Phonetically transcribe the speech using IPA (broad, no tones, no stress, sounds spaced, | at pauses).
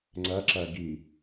ŋ͡ǀ æ ǁ æ ɡ i